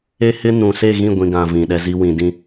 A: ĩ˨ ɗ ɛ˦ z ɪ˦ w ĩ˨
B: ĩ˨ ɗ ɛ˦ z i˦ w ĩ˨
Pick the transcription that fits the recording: B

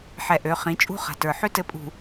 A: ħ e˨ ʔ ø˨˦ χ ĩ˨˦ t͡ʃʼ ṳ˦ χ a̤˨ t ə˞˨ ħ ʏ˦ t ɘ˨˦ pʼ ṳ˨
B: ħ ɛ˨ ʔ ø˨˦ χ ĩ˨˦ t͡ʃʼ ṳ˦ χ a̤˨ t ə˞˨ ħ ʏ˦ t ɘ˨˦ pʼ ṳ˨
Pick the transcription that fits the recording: B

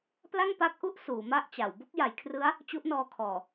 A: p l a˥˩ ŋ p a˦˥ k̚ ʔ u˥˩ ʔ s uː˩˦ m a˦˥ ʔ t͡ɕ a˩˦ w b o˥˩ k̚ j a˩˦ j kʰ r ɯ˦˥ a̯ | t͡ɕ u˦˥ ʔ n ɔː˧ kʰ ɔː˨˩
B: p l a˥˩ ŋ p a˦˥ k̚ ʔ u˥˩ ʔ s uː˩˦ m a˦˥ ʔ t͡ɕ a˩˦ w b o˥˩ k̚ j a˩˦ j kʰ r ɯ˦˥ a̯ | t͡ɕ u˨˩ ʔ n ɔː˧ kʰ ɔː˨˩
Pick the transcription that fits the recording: A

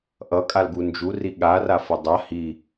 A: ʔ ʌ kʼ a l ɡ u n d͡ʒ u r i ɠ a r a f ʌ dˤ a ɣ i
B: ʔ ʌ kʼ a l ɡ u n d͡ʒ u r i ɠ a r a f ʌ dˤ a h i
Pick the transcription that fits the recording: B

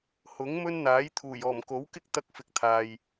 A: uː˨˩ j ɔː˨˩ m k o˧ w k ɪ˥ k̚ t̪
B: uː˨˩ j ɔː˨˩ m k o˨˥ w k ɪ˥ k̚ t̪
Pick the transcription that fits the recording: B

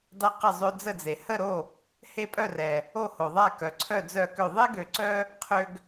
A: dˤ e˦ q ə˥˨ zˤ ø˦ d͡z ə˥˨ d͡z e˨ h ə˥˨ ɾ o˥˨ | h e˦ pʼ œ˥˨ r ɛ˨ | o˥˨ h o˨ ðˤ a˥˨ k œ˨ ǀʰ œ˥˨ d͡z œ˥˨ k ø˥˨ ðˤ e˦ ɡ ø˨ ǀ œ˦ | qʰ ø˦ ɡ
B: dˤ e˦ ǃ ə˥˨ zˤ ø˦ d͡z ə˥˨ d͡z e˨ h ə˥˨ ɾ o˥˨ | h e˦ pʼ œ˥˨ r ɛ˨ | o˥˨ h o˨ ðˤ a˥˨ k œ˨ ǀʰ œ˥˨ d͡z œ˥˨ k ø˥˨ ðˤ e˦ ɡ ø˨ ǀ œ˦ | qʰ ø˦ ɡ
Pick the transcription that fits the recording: A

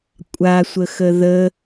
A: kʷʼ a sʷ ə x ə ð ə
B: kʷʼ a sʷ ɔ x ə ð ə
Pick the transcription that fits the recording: A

